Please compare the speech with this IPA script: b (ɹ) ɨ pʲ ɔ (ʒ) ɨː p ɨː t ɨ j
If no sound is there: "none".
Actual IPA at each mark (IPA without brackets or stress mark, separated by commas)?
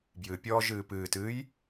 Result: j, ʒ